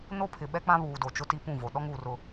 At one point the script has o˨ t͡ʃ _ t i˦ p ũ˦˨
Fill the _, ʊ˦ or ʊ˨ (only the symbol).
ʊ˦